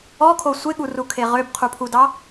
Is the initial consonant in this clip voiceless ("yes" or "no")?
yes